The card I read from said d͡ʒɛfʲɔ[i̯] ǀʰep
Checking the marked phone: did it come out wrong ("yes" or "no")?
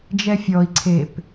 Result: no